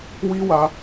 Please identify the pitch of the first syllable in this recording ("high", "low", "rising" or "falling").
high